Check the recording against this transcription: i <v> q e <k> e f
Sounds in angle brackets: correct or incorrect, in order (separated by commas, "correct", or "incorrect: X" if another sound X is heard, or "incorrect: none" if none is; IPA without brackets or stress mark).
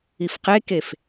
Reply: incorrect: f, correct